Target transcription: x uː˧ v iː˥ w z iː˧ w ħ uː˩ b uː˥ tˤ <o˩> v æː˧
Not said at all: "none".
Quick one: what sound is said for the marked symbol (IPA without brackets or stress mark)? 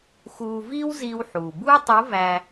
o˧˥